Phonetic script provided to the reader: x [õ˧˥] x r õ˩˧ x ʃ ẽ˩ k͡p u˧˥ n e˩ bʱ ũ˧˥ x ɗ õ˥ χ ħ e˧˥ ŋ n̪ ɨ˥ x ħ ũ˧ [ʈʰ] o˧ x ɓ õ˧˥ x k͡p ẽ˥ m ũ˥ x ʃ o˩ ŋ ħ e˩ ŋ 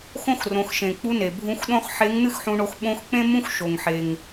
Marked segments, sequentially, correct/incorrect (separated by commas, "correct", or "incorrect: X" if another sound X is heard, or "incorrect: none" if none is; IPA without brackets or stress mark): incorrect: õ˥, incorrect: ɳ